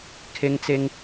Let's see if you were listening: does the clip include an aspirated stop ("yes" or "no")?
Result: yes